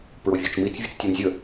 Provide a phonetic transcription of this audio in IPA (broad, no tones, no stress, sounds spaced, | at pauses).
p ɹ o vʲ o t͡ʃ m i t͡s vʲ ə t͡s tʲ ɔ n zʲ ə